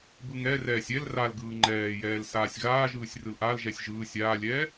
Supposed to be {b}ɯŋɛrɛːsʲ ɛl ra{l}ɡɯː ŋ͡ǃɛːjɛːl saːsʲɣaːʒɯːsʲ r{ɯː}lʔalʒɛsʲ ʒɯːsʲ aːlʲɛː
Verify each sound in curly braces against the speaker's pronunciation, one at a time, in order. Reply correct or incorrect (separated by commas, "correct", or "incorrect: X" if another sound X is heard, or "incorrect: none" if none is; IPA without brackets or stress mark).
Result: correct, correct, incorrect: ɯ